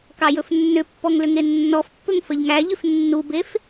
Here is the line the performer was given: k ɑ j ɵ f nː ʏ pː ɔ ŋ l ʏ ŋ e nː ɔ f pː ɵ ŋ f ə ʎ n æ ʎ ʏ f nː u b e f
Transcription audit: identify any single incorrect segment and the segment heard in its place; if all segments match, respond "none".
n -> ŋ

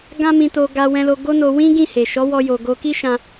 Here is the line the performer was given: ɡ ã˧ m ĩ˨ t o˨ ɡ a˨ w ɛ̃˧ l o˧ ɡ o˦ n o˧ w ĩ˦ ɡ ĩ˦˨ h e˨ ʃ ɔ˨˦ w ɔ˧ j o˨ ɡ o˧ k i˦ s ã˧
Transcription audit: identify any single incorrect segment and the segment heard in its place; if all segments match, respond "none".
s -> ʃ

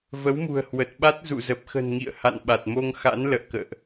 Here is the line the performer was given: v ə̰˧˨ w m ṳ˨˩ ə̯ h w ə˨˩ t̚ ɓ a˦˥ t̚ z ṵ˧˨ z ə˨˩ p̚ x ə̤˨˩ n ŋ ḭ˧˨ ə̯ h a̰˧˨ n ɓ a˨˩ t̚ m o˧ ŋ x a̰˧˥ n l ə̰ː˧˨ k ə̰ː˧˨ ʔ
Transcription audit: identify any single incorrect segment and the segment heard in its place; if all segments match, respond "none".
ə̰˧˨ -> ə˨˦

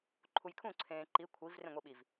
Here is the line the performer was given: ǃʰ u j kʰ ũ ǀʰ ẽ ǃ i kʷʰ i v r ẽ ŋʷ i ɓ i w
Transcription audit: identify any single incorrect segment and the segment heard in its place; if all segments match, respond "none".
w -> v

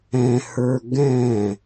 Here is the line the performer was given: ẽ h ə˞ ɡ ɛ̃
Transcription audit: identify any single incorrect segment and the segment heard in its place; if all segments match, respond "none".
ẽ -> ɛ̃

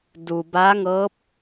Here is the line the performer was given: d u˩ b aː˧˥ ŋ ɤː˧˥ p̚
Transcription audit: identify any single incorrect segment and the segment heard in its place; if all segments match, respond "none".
none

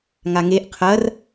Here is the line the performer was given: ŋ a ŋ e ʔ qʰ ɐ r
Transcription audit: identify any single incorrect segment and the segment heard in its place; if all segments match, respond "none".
none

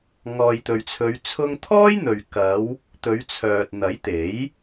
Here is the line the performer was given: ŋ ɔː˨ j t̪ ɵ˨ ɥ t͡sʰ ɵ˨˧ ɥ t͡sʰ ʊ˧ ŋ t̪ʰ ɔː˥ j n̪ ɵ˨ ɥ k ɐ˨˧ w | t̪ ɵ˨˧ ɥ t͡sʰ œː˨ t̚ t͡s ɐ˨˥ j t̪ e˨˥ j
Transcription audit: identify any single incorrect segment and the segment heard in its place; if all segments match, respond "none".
t͡s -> n̪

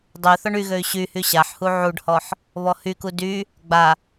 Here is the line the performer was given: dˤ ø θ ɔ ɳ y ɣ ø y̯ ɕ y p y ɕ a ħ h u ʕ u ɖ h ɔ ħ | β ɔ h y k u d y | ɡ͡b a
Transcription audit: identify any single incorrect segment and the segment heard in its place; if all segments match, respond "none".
p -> h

